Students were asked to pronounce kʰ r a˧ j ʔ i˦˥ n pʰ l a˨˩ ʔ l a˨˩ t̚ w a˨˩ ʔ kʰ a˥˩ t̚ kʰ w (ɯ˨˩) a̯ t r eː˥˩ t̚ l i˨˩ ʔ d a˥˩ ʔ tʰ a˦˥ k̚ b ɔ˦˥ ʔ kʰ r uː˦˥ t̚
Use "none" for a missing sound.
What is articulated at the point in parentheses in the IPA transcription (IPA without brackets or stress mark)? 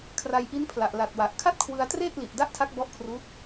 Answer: ɯ˧